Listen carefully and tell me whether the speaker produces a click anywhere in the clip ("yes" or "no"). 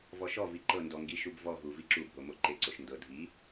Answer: yes